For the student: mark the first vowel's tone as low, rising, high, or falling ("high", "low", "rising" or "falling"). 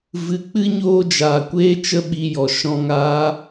low